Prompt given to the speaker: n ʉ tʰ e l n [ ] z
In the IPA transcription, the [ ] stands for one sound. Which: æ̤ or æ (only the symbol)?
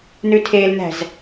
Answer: æ̤